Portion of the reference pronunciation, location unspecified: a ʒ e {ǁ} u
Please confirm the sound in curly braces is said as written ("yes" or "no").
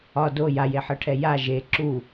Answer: yes